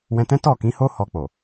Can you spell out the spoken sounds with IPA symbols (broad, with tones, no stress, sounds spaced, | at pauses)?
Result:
w ɛ̃˧ t ɛ̃˦ t ɔ˦˨ k ĩ˨˦ h o˦ h ɔ˧ k͡p o˨